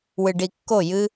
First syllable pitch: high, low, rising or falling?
low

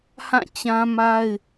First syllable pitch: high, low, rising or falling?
falling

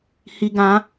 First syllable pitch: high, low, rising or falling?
high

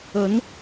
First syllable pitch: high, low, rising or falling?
rising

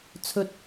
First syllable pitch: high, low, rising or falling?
low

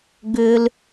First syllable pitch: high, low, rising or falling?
low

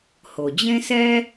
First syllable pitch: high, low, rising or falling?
low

